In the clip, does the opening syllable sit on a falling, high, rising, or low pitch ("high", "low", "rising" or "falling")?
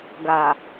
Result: low